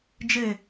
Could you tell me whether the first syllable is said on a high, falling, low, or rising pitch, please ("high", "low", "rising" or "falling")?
falling